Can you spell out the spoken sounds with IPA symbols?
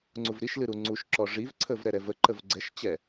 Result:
ŋ͡ǀuvɾiʃlɨ ɾuŋ͡ǀuʃǁɔ ʐivǀʰəv ɾɛɾɛvəǃəv ɡ͡ǀɛʃt͡ɕɛ

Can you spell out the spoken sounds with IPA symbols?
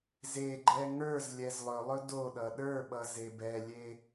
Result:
zeɡ͡ǃɛ ŋə˞z lʲɛzlˠɵlˠɵ doɗʌ ɗə˞ɓʌ zebɛlʲe

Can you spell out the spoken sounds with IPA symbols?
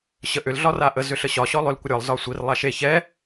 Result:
ɕəʔʏl ɮɒraʔə zʏɬəɕɒ ɕɔlˠʏl kʷəɾʲɒlˠ zɒsʷir lˠaʃe çɛ

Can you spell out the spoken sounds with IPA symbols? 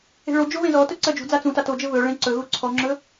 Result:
e̤ɭod͡ʒo βẽzɔtɵ ǀɜd͡ʒṳd͡za t͡sũta tod͡ʒɘ βɵ ɭẽǀɵɣu ǀʰɔŋ͡ǁɵ

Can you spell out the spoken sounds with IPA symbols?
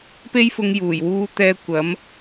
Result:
pe˥jfʊ˧ŋ juː˨˩jwuː˥t̪ɛː˥ kʷɐ˨˥m

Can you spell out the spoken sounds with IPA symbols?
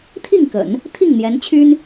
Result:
t̪ʰi˥˩ŋkə̰˨˩˦n | t̪ʰi˥˩ŋn̪jɛ˧˥n t͡ɕʰy˥n

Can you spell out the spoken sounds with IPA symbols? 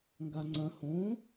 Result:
ŋɡaŋ͡ǀɐ̃ hõ

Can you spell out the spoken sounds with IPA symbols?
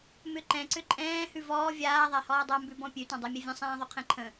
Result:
mʏǃɛ̃ ǀʏǃʼɛ̃ː hʉvɔː vʲaː ðˤahɔːdˤa mbʉbɔ̃pʲʉ tãdˤɛmʲɛvʲə̃ sˤɛ̃ːðˤʉqʰɛ̃ǃʰə̃

